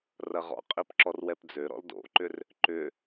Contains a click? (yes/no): yes